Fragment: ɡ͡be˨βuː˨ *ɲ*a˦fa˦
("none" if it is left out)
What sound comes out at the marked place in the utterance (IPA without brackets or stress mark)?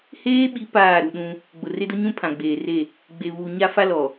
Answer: ɲ